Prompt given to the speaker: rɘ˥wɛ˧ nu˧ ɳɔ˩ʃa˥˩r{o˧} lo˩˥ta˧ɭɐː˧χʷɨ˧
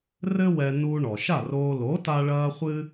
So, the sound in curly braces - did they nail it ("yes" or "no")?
no